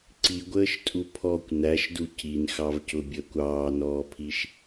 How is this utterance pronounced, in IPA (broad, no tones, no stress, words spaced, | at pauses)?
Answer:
ǀiɡʷəːʃtʼu pʰɔkʷ næʃdu cinxɑvcʊbʲəːkʷ ɑːnɔːpʰiʃ